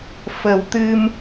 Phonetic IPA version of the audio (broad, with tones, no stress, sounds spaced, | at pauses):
f ə˨˩˦ w t̪ ɨ˧ m